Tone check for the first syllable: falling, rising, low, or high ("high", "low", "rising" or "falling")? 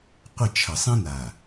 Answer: falling